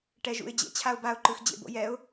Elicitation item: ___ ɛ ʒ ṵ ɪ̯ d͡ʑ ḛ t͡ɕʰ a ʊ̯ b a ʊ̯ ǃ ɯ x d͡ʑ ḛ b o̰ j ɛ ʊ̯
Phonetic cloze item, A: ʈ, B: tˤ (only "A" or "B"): A